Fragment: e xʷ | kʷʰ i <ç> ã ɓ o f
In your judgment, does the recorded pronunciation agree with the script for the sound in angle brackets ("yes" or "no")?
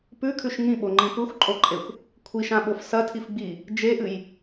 no